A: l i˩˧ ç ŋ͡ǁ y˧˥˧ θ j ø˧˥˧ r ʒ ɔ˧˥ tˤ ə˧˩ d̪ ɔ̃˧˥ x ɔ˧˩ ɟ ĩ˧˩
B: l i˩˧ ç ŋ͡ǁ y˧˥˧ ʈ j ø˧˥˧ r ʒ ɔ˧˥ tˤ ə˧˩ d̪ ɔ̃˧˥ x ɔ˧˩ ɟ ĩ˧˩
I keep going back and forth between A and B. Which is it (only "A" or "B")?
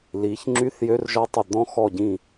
A